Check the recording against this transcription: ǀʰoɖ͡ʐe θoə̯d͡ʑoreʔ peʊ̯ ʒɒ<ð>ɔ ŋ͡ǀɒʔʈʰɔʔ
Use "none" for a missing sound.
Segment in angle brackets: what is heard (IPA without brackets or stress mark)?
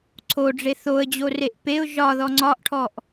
ð